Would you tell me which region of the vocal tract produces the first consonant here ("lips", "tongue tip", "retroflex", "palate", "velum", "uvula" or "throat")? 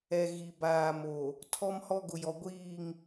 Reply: velum